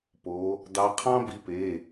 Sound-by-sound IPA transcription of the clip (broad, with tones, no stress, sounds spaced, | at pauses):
p o˨˦ | d ɑ˨˦ qʰ ɑ̃˦ b i˨˦ p e˩˧˩